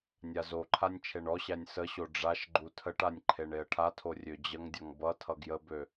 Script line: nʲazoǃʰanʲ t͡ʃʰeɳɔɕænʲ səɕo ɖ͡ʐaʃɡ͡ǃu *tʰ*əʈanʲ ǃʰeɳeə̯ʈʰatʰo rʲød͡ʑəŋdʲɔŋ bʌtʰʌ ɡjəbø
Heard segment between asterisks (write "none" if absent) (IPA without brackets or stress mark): tʰ